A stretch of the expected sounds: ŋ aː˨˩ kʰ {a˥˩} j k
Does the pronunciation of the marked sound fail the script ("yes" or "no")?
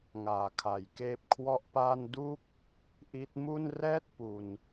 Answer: yes